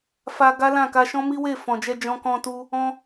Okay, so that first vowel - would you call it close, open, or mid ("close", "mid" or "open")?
open